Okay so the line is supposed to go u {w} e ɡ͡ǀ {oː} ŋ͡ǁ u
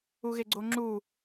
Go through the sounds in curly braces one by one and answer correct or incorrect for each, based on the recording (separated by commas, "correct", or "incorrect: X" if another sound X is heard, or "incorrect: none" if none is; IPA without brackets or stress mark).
incorrect: ɣ, incorrect: o